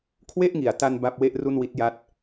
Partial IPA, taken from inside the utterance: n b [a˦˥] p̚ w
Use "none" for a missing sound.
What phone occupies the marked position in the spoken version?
a˥˩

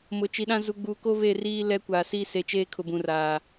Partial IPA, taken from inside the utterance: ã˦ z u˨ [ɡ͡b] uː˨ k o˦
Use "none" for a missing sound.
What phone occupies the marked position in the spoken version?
ɡ͡b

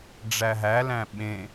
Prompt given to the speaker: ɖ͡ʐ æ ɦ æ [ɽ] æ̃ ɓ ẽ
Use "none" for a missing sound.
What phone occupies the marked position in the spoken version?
l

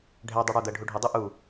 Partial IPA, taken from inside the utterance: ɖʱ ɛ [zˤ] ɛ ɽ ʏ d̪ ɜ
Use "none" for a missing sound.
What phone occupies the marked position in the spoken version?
dˤ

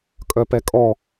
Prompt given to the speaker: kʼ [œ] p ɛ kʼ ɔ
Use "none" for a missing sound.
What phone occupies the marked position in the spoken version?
œ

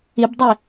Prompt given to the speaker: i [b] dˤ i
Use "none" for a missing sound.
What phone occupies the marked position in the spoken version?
b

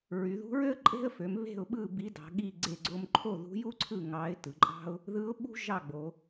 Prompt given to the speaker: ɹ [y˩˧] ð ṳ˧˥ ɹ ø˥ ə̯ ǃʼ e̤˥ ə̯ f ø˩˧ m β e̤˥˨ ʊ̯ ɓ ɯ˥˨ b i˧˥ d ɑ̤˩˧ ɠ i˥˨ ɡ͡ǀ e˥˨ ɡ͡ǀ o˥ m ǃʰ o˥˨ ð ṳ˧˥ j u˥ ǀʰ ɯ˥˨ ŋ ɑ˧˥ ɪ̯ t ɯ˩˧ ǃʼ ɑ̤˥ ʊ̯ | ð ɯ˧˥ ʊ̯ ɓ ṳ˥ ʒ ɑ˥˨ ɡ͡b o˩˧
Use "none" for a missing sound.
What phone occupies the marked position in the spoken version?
y˩˧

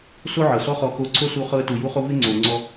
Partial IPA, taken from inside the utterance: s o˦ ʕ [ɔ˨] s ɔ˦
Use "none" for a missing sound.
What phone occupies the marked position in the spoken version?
ɤ˨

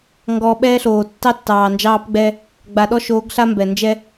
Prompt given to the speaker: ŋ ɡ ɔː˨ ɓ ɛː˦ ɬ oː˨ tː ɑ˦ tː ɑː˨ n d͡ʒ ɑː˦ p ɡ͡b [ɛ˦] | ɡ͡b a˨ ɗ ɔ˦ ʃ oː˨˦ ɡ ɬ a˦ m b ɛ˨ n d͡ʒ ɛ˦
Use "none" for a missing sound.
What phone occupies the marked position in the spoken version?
ɛ˦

